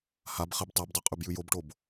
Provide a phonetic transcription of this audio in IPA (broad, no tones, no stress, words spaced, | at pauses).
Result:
hab χebtˤebdˤo qʼʉbjʉjobʈob